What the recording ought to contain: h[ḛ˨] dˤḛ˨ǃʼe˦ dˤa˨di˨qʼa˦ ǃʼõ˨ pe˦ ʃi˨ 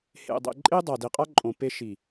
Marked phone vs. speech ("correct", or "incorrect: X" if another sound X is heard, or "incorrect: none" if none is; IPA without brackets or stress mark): correct